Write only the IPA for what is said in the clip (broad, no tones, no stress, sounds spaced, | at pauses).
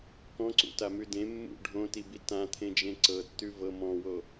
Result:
k ɔ̃ ǀ ṵ t a m ʉ d ẽ mː ṵ ɖʱ õ t i b i t ã t̪ʰ ẽ d͡ʒ ẽ ǀ ɤ tː ʉ v ɤ m ɔ̃ w o